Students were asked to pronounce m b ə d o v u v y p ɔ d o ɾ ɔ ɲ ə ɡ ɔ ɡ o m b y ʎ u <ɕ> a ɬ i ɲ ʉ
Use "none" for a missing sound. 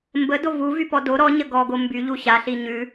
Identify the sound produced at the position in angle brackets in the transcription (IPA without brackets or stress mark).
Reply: ɕ